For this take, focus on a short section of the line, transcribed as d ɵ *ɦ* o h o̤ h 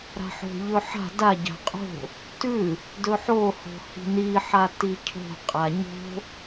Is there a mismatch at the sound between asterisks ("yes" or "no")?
yes